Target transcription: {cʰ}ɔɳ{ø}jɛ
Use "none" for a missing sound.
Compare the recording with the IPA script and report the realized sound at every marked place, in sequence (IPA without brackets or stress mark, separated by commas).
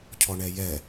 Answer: cʰ, ɛ